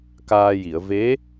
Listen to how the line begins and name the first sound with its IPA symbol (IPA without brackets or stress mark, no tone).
k